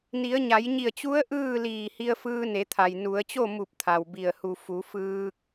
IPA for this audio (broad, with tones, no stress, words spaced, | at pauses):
ni˩˧ə̯ɲa˩˧jɲi˧˩ə̯t͡ɕu˧˥ə̯ ʔɯː˥˨liː˧˩hi˧ə̯fɯː˧ ne˩˧t̪ʰa˩j nu˩˧ə̯t͡ɕo˥˨mu˧˩p̚ t̪ʰa˩wbi˧˩ə̯hu˧˩ fu˩˧fɯː˧k̚